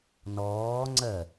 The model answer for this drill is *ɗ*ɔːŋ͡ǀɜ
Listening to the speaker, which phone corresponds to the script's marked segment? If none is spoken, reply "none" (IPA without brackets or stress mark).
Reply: n